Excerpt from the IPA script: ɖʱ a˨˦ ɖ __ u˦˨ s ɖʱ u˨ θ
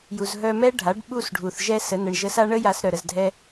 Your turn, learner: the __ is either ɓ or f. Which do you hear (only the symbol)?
ɓ